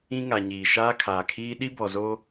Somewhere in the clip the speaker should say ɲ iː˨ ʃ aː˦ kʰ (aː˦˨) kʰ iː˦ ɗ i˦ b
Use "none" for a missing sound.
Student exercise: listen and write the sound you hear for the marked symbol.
aː˨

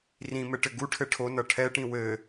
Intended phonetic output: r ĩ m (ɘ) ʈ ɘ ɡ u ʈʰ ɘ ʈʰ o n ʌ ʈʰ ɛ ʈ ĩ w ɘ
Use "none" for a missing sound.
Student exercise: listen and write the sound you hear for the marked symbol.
ɘ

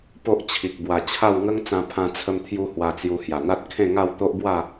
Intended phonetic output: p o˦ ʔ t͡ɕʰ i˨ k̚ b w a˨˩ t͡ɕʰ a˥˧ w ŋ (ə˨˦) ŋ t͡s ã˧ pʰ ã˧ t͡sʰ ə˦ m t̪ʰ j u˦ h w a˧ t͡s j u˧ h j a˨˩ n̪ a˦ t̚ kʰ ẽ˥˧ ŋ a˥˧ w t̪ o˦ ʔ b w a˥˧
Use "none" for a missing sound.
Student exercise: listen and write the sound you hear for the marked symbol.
ə˦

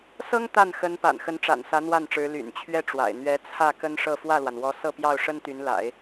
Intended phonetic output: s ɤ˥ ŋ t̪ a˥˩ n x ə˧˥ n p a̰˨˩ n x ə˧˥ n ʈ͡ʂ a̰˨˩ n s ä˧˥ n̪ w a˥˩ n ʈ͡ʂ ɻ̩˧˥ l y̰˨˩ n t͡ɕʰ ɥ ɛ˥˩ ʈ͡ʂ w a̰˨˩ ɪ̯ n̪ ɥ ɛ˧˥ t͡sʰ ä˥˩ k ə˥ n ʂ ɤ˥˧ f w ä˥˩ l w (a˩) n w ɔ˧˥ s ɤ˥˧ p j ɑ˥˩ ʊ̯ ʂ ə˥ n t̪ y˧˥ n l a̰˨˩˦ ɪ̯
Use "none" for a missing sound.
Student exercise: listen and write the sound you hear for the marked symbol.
a˩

